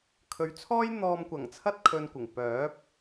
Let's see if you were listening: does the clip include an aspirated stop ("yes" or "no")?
yes